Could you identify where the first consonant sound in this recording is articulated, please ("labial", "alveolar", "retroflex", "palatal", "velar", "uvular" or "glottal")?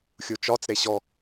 velar